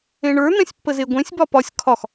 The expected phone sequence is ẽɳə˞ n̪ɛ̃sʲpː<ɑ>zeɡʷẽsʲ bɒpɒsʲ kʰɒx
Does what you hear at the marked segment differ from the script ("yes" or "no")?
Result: yes